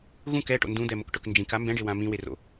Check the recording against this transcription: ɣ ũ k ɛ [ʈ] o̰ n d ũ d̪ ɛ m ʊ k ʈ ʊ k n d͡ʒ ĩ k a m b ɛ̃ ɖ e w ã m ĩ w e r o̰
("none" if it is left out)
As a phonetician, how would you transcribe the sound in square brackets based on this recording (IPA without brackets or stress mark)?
ʈ